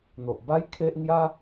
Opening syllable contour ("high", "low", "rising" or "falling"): low